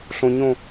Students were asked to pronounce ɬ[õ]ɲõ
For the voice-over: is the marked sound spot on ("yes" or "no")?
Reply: yes